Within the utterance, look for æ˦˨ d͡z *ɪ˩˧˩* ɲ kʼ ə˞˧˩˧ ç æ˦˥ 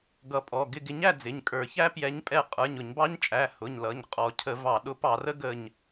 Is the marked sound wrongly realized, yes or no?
no